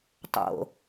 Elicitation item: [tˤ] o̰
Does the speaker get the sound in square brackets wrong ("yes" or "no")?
no